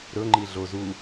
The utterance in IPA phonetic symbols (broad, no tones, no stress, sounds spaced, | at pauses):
ɾ ɵ ŋ͡ǃ i ɮ o z u